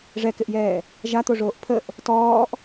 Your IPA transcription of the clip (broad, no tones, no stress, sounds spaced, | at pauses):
ʐ ɛ k ɪ ʔ j ɛː | ʒ a t̪ o ʐ oː ʔ pʰ ə ʔ | t ɔː ʔ